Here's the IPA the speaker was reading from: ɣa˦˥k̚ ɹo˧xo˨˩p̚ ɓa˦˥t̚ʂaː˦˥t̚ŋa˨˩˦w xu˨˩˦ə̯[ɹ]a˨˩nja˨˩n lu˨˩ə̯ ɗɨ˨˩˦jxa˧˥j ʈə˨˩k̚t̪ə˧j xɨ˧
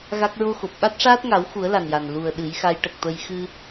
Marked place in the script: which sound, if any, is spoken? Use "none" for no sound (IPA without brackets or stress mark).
l